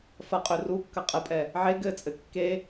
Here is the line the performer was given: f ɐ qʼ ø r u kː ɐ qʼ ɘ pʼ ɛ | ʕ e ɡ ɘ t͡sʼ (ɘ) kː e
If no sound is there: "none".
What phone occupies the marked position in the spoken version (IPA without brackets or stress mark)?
ɘ